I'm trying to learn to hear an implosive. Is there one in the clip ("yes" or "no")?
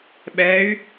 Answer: yes